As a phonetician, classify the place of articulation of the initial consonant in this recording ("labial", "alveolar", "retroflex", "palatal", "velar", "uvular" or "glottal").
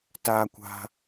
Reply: alveolar